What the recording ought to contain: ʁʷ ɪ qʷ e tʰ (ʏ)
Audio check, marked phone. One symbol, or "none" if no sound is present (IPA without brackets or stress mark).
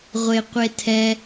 ɛ